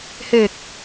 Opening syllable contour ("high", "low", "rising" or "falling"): low